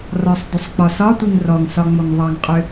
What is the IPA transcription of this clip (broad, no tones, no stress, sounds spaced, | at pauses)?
r ɒ sˤ d ʏ sˤ k͡p ɒ s ɒ tʷ i ŋ r ɔ ŋ s ɒ ŋ͡m o ŋ ðˤ ɑ ŋ qʼ ʏ